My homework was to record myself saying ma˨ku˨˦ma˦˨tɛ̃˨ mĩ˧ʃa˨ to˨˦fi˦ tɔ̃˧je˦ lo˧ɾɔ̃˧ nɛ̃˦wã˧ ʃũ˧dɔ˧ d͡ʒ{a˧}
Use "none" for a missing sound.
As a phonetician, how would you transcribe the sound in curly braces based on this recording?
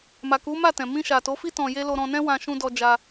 a˧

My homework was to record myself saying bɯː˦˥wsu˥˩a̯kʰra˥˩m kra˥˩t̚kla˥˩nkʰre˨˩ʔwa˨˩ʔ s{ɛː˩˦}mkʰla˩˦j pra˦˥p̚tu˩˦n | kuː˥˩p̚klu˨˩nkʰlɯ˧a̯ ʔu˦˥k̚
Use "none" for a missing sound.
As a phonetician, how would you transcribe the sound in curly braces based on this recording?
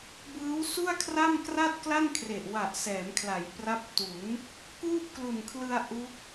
ɛː˩˦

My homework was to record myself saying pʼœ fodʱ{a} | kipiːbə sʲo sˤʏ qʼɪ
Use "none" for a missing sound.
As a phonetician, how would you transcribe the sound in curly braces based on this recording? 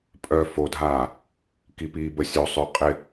aː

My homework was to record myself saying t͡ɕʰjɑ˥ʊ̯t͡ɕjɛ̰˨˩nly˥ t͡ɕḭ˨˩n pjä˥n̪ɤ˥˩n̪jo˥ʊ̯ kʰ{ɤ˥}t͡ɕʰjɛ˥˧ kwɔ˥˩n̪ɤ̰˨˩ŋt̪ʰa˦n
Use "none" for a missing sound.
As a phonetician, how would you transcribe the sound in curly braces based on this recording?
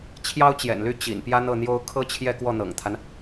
ɤ˥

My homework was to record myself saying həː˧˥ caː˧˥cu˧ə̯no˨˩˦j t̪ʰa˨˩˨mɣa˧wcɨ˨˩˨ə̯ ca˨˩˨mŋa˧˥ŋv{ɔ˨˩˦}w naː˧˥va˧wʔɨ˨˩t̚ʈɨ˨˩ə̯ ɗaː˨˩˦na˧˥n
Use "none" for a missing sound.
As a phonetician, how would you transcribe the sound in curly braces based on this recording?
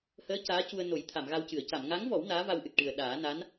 ɔ˨˩˦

